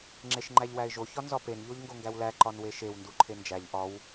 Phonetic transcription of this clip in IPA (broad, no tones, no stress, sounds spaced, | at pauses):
ŋ͡ǁ e ʃ ŋ͡ǃ æ ʎ w æ ɪ̯ ʒ o ç ɒ n z ɒ p e n ʎ o ʎ ŋ ɡ o ŋ ɡ æ w l æ ǃ ɒ n w e ʃ e w n d u ǃʰ e n d͡ʒ æ ʎ ʔ ɒ w